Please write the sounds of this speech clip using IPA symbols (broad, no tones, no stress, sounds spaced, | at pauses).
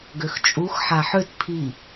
ɡ ø x t͡ʃʼ u x ħ a ħ ø t pʰ i